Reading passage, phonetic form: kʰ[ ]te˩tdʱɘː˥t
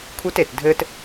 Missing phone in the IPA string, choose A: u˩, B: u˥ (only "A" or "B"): B